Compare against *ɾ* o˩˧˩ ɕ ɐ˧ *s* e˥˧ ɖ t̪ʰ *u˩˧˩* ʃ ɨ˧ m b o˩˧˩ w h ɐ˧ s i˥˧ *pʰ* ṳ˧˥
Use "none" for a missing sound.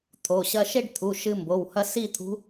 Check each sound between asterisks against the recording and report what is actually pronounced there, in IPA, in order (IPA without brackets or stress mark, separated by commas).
t̪ʰ, ʃ, u˩˧˩, t̪ʰ